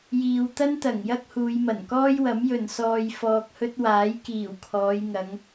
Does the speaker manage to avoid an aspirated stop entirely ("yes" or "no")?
no